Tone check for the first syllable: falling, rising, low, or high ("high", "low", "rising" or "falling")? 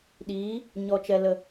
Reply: rising